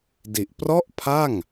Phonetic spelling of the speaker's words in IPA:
di˨˩ʔ prɔ˥˩ʔpʰa˥˩ŋ

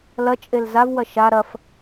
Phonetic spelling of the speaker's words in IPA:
lɐt͡ʃʼel zavwɐ ʃa ɾɐf

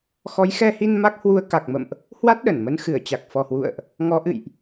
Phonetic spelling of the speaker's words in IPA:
xɔ˨˦jxɛ˧hi˧n ma˦˥k̚hwu˧ə̯ ka˨˩k̚mə̰˧˨mʔ | hwa˦˥t̚ɗə˧˩nmə˧n xɨ˧˩ə̯t͡ɕa˨˩k̚fɔ˨˩hwṵ˧˨ə̯ʔ | ŋɔ˨˦ʔɨ̰˧˨jʔ

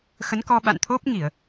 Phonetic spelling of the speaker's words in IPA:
xə˨˦nkɔ˧ ɓa̰˧˨nt̪ʰo˦˥p̚ŋi˧˩˨ə̯

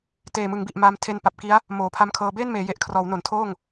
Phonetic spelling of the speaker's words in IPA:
teː˨˩mɯ˩˦ŋbi˨˩ʔmaː˧m tʰe˧npa˨˩p̚ki˦˥a̯ | moː˩˦pʰa˦˥mkʰɤː˧ beː˥˩nmeː˩˦je˨˩ʔkʰrɔː˩˦w no˩˦ntʰoː˥˩ŋ

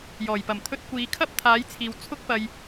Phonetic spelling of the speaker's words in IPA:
jɔː˨˩jpɐ˨˩m t̪ʰɵ˧t̚kʷiː˨˧kʰɐ˥p̚ t̪ʰaː˨˥jt͡sʰiː˨w t͡sʰʊ˥k̚pɐ˧j

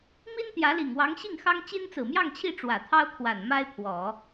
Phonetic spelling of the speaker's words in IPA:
mi˥nt̪jä˧˥li˨˩ŋ wɑ˧˥ŋɕi˥˩ŋxɑ˥ŋ t͡ɕi˥nt͡sɹ̩˨˩mjɑ˥˧ŋt͡ɕʰi˥˩ ʈ͡ʂwä˨˩t̪ʰɑ˥ʊ̯kʰwa˨˩n ma˥ɪ̯pʰwɔ˨˩˦

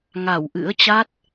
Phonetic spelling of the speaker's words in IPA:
ŋa˧˩wʔɨ̰˧˥ə̯ t͡ɕa˦˥t̚

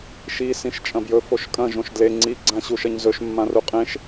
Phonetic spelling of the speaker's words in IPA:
ʃi sĩʃt͡ʃʼɐ̃bjɵ foʃkʼɐ̃ ʒõʃdle ŋ͡ǀi ɡ͡ǀãɕuʃɐɲzɵʃ mːãruqʼẽʃ

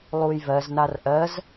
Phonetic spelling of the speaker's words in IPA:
lˠujvɜznar ʔɜz

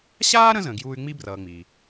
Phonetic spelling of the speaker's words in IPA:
ɕaː˥ɾə̃˦zə̃˨ ɡjuː˥y̯ ŋ͡mi˥brʌː˨ŋ͡miː˩

